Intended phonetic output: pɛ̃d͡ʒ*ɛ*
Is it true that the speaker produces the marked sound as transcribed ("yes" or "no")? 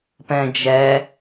yes